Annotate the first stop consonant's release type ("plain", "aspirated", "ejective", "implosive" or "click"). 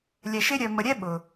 implosive